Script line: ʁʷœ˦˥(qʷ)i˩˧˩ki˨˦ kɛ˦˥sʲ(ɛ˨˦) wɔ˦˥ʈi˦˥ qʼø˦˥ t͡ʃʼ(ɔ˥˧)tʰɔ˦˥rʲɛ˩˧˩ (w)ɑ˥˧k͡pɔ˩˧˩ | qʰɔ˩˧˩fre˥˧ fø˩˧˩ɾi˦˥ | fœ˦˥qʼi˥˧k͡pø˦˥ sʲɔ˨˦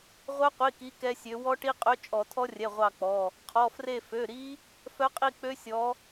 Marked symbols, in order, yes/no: yes, no, no, no

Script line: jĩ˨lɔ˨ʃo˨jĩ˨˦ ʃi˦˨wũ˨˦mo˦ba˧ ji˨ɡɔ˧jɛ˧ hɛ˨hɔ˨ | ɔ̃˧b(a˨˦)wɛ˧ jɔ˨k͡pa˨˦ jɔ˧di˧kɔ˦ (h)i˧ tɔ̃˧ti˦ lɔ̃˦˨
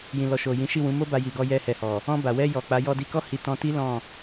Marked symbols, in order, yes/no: no, yes

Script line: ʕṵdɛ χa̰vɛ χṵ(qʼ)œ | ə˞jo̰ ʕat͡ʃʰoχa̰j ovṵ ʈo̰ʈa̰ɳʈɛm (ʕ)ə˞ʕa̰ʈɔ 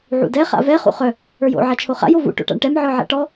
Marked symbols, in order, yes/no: no, yes

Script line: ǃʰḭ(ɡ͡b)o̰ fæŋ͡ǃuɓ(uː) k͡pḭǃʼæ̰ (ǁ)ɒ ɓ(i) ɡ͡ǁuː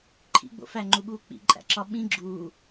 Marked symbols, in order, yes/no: yes, yes, yes, no

